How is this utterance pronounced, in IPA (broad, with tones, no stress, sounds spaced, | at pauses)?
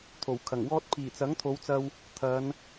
t̪ʰ o˨˩ w kʰ ɐ˨˩ ŋ w ɔː˥ t̚ pʰ iː˨˩ t͡s ɐ˨˥ ŋ t̪ʰ o˨˧ w t͡s ɐ˧ w | t̪ʰ ɐ˨˧ n